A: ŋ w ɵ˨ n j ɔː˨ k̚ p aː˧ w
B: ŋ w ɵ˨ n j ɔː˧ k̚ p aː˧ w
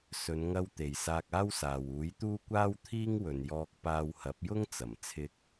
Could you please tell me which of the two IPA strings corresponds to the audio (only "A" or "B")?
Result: B